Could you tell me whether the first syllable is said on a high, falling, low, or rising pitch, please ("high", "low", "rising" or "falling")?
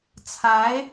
rising